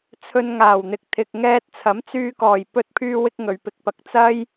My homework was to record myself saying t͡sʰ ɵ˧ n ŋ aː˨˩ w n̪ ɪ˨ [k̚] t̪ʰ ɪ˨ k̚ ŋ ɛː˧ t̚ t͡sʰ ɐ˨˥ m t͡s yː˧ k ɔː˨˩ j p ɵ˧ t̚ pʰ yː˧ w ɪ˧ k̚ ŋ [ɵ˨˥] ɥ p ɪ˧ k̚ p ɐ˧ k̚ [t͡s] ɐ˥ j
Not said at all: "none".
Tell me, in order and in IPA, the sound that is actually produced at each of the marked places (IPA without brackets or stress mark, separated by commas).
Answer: k̚, ɵ˨, t͡s